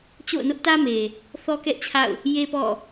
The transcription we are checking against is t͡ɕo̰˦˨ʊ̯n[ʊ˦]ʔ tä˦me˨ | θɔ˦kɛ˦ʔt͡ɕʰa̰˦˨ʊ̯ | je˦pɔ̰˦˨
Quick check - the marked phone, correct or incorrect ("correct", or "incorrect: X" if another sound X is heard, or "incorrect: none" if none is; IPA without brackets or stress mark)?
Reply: correct